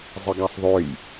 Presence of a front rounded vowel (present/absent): present